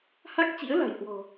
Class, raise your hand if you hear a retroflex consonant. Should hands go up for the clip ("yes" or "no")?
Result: no